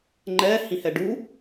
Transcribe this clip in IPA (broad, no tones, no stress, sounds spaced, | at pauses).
ŋ͡ǃ ɛ h ĩ h ɛ ɖ u